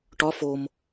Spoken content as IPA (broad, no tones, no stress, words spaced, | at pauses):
ʈɒ fom